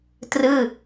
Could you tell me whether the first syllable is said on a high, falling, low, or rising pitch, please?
falling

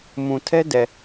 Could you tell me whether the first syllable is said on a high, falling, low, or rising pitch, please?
low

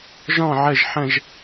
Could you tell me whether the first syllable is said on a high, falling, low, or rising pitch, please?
falling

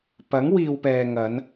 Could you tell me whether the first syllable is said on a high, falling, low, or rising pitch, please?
rising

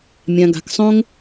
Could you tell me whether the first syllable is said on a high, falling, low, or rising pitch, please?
low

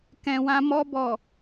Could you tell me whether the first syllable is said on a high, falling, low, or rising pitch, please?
low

